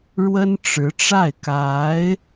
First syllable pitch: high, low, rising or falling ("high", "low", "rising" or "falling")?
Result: high